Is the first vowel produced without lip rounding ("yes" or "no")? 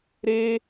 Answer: yes